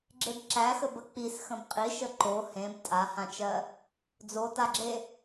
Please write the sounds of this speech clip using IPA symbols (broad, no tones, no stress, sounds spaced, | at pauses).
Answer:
ɡ͡ǁ e b ǁ æ x ə b ə k͡p i s x ə̃ b qʼ i ʃ ə ǃ o h ẽ b tʼ a h ã t͡ʃ ɜ | d͡z o t a ɡ͡ǁ e